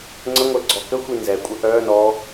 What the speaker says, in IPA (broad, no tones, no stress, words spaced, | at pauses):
ŋ͡ǀəŋʷɛ ɡ͡ǀɔkəxʷi nzɛkʷʼə ʔœ nɔ